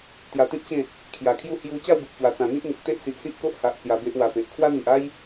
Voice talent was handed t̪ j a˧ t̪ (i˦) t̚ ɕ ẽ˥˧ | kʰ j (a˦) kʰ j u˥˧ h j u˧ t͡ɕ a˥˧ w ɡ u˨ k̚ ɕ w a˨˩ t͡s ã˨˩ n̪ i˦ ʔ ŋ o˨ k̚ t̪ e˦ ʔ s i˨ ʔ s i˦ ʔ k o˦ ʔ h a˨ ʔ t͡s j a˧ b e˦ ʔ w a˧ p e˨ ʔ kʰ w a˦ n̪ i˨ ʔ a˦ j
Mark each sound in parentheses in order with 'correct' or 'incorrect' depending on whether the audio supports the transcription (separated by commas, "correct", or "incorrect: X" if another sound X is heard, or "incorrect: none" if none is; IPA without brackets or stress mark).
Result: incorrect: ĩ˦, incorrect: a˨˩